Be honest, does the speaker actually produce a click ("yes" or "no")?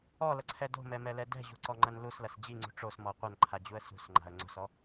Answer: yes